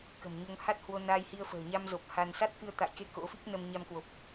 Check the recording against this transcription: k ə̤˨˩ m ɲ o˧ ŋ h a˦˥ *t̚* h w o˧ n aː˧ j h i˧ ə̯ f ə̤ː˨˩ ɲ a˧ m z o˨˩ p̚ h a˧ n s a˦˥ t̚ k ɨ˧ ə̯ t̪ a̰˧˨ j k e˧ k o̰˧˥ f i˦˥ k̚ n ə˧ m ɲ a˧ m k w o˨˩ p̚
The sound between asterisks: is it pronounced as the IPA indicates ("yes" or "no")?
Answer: yes